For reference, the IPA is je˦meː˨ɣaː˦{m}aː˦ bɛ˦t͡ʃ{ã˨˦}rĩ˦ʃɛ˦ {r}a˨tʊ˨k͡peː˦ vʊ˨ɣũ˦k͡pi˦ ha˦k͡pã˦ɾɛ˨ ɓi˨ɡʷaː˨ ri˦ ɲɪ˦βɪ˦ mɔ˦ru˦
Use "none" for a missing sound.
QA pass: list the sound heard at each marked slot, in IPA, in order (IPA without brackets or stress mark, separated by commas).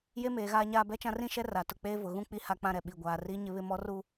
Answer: ɲ, ã˦, r